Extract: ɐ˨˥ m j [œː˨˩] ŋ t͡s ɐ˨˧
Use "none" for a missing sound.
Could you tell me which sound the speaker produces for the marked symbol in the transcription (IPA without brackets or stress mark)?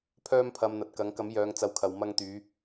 œː˨˧